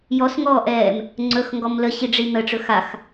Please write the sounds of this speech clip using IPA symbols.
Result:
jɔsŋɔːʔɛːm | ŋ͡ǀɵxŋɡɔm ləɕiɖ͡ʐi n̪əʈ͡ʂɵ xax

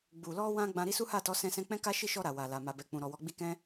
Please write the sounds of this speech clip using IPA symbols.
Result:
ɡ͡bu˨lɔ˧ wã˦ɡ͡bã˧ ɾi˦su˦ha˦˨tɔ˨˦ sɛ̃˦sɛ̃˦ k͡pɛ̃˦ka˦ʃi˦˨ʃɔ˧ ɾa˨wa˨la˨ ma˨ bɛ˨k͡pũ˨ɾɔ˨wɔ˨˦ ɡ͡bi˦ kɛ̃˦

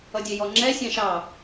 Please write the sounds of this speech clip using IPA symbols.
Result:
ʌdʲɛjɔŋ͡ǁɛ sʲɑ̃ʃɑ

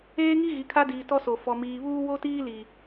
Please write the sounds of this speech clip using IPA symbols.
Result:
eː˦ŋi˦ ɣi˨kʰa˦diː˨ tɔ˦so˨ fɔ˨miː˨βuː˦ wo˦tiː˦li˨

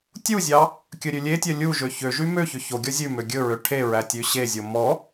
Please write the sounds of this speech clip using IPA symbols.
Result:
tʲuzʲɑ | kʲɵɾʲʉlʲetʲœ lʲuʒø çøʒy møçø çoɡʲɔ zʲʉmø ɡʲɵɹø ʈʰeɹæ tʲʉɕezʲo mɔ

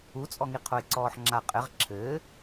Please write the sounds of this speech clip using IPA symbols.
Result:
ut͡sʼɔŋi qʰoe̯ǀɔːħŋ͡ǁa qʼɘʁ ǁʰɘː

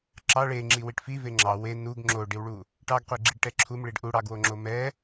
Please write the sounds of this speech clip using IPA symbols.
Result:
ǁɑ ɭeŋ͡ǁi wiʈfive ŋ͡ǁɑ we nuɡ ŋ͡ǁoɖiwɭu | ʈɑɡqʷeɡ͡ǁiɖʈɛ ǁʰumɭiɖ ʔuɽɑɡwoŋ͡ǁo mɛ

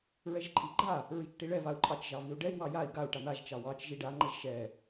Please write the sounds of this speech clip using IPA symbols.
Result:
ɹɛʒǃʼiɡ͡ǃa | ɹit͡ʃʈiɭɛ vau̯ǃʼɑt͡ʃ ʒɑviu̯ɖɛi̯ wɑjai̯ ɡau̯ ʈan̪aʒ t͡ʃɑwɑt͡ʃ ʒiɖa ŋ͡ǃɛʒʃɛ

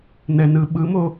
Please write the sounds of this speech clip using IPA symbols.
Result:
nɛnɯɓɯmo

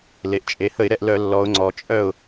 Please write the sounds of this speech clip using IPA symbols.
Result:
le˩ʔt͡ʃʼe˩˧hə˧˩˧ɪ̯ ɾɛ˥˩ʔlœ˧˩˧lːɔ˩˧ʊ̯ŋ͡ǀɔ˩ t͡ʃʼœ˥˩ʊ̯

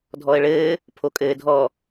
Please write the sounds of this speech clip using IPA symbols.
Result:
dʱɔə̯ɭɘː | pʰokʼɘːdʱɔ

